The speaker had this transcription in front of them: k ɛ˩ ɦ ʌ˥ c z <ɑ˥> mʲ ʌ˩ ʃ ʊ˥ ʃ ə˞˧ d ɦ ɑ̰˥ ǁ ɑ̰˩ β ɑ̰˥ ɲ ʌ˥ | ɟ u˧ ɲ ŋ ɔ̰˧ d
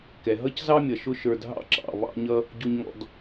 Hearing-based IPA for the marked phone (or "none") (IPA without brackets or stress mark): ɑ˥